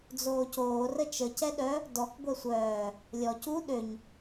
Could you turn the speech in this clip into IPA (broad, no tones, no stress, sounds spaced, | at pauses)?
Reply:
d͡z oː c oː r ə t͡ʃ ə c ɛ ɗ œ | d ɔ k ɡʷ ɛ sʷ œː | lʲ ɔ c u ɗ ø ɲ